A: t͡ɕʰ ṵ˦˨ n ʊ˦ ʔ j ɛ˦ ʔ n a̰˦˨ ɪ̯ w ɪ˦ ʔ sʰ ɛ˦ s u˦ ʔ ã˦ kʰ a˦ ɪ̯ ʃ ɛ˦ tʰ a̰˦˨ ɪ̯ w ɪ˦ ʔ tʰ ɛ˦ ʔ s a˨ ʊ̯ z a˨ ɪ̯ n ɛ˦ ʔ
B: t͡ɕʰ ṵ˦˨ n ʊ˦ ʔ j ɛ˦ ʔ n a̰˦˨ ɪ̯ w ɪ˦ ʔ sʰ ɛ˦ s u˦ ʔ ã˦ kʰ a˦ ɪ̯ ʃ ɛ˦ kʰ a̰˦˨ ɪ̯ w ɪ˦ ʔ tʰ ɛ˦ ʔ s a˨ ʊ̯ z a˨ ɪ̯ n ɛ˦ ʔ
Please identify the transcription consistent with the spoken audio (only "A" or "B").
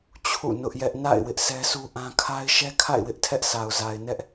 B